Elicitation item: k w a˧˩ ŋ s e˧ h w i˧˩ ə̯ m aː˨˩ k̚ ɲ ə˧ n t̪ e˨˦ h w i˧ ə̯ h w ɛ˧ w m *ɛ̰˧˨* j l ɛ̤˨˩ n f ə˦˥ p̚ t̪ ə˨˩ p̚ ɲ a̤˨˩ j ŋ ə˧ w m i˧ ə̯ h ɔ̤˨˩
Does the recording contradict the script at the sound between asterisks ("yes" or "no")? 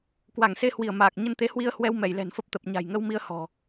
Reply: yes